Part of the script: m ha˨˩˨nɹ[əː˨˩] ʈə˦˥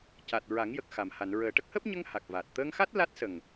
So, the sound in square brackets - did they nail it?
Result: yes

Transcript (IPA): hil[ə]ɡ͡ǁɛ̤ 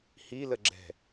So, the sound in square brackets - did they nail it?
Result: yes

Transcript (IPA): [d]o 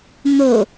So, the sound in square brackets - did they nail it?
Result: no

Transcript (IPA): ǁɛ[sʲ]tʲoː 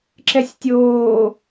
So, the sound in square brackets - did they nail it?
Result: yes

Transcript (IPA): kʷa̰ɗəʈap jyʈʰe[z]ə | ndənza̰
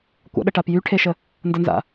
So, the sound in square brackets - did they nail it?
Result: no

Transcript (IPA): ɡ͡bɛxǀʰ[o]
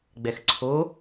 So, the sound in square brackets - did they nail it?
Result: yes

